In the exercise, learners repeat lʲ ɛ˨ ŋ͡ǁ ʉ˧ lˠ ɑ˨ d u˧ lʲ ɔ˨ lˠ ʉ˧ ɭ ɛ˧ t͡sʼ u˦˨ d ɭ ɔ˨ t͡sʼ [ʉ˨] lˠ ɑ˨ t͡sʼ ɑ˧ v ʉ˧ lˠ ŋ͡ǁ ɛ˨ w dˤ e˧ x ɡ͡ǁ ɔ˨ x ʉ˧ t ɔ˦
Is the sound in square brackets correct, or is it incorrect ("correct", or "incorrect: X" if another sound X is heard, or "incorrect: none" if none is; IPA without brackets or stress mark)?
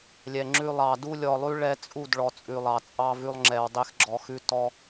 correct